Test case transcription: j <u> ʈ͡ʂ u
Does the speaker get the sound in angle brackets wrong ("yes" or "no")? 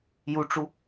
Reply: no